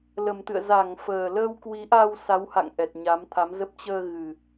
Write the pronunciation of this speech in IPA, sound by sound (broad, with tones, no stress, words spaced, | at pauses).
lə˨˩mt̪ɨ̰˧˨ə̯ za˧˩ŋ fəː˨˩ləː˧wkwi˨˦ʔa˧w sa˨˦wha̰˧˨ŋ ʔɛ˨˩t̚ɲa˨˦mt̪ʰa˨˦mzə˦˥p̚ t͡ɕəː˧ ɣɨ˨˩